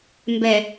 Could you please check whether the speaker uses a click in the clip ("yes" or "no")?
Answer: no